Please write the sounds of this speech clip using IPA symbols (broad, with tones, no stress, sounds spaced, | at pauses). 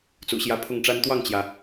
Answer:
t͡s ṵ˨˩ ɕ j ä˧˥ pʰ ʊ˥˩ ŋ ʈ͡ʂ a˥ n t̪ w ɑ˥˩ ŋ t͡ɕ j ä˩